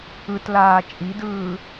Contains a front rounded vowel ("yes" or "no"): no